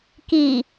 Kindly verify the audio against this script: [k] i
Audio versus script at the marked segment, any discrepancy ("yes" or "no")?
no